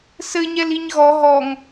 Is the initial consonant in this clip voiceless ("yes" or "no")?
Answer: yes